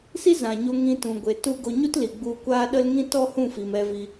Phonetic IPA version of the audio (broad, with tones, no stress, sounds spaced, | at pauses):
s i˦ z ã˨ ɲ o˧ ŋ ĩ˧ t ũ˨ ɡʷ e˨ t u˦ ɡ o˧ ɲ u˦ t l i˨ ɡ͡b u˧ kʷ aː˦ ɗ ə˦ l ŋ ĩ˦ t ɔ˦ h ũ˦˨ f i˨ m ɛ˧ v i˧